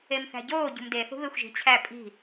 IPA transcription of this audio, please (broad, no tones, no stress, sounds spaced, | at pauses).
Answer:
e m θ æ̤ ɟ oː ɟ ṳ m d e θ ṳ β e xʷ ʒ i̤ t͡ɕʰ æ pʼ i̤